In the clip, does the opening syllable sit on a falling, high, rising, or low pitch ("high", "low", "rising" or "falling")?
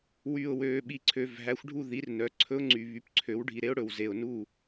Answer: low